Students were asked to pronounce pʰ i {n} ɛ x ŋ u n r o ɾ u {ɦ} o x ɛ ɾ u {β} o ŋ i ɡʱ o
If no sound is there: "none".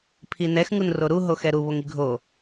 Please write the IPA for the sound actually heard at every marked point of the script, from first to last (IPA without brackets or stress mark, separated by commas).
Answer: n, ɦ, β